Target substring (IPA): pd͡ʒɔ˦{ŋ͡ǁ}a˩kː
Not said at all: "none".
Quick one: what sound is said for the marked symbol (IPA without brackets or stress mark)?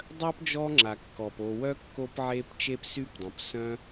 ŋ͡ǁ